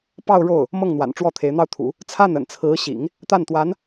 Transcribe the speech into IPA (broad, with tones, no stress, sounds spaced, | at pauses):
p ɑ˥˧ ʊ̯ ɻ o˥˩ ʊ̯ | m ɤ˥˩ ŋ n̪ w a̰˨˩ n ʈ͡ʂ w ɔ˥˩ t̪ʰ e˧˥ ɪ̯ n̪ ɑ˥ ʊ̯ t̪ʰ ṵ˨˩˦ | t͡sʰ a˥˩ n ə̰˨˩ n t͡sʰ ɹ̩˧˥ ɕ ḭ˨˩˦ ŋ | t̪ a˥˩ n t̪ w a˧˥ n